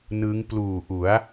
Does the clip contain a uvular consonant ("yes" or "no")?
no